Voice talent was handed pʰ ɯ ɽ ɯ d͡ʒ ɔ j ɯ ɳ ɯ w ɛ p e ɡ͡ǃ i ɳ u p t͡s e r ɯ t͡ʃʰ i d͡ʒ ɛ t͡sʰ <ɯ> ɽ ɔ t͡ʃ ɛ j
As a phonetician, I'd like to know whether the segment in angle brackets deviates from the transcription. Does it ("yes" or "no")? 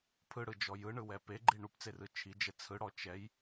no